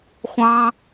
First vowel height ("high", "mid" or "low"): low